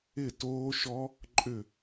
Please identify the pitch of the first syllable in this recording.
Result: falling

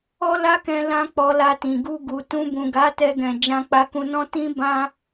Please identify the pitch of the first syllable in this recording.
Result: high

